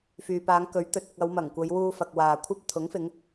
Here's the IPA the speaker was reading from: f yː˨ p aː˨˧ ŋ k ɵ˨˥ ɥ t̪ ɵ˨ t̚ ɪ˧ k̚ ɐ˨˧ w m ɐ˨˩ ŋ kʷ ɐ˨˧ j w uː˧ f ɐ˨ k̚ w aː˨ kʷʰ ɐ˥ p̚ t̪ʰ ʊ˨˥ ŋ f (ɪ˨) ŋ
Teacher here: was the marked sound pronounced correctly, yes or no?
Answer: no